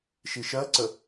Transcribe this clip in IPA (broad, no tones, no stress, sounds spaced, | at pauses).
ʃ i ʃ ɜ ǀ ə